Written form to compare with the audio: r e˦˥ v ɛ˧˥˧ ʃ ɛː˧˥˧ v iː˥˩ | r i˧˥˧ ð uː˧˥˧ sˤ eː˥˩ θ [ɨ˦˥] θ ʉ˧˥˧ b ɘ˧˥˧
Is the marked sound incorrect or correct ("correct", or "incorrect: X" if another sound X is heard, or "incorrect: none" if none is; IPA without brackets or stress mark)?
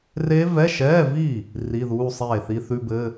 incorrect: i˦˥